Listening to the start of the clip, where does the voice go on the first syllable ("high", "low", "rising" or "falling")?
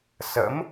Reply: rising